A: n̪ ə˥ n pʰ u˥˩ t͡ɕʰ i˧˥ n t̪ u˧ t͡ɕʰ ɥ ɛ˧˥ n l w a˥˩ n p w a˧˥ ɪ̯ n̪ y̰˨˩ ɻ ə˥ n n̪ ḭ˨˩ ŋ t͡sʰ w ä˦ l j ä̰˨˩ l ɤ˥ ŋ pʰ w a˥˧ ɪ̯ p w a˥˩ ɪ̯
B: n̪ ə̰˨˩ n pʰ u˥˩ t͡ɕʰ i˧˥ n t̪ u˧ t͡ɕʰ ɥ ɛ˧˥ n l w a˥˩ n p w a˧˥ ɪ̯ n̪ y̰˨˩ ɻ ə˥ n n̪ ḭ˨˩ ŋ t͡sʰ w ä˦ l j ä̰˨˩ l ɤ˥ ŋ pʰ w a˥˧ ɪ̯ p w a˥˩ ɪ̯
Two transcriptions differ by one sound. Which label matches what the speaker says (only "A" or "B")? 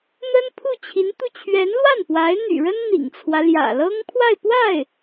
A